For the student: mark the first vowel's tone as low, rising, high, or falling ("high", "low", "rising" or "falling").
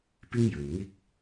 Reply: high